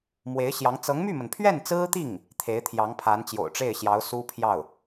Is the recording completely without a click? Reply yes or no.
yes